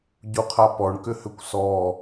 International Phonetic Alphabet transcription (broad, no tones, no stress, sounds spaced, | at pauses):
ɟ u qʰ a p ɔ ɳ k ʏ h ʏ kʷ s ɔ